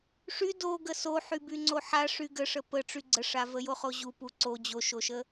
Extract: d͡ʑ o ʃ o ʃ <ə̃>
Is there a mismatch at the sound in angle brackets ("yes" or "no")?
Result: yes